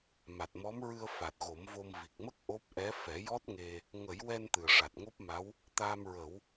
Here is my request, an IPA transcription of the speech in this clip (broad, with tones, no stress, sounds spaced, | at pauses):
m a˨˩ t̚ m ɔ˧˥ m ɹ ɨ˧ ə̯ f a˨˩ t̚ ɣ o˨˩˦ m v o˧ m v i˨˩ k̚ m ə˦˥ k̚ ʔ o˦˥ p̚ ʔ ɛ˧˥ f ɛ˨˩˦ j ɔ˦˥ t̚ ŋ e˧ | ŋ ə˨˩˦ j w ɛ˧ n t̪ ɨ˨˩ ə̯ ʂ a˨˩ t̚ ŋ o˦˥ p̚ m a˧˥ w | t̪ aː˧ m ɹ ə˨˩˦ w